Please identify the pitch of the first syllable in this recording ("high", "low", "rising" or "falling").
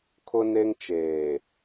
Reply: high